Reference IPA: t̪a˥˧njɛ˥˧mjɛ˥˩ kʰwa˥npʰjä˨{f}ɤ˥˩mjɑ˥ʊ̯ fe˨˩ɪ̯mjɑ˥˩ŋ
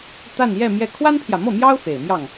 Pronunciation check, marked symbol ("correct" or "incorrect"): incorrect